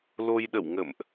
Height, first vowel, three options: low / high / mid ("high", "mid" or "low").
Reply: mid